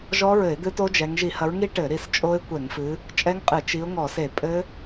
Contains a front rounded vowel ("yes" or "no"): no